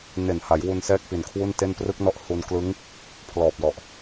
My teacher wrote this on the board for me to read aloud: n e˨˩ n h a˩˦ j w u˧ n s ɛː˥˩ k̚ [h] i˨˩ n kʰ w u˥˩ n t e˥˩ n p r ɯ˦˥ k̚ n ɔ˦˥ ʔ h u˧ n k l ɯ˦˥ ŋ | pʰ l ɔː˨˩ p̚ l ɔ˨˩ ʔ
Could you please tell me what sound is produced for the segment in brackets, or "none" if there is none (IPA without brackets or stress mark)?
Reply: p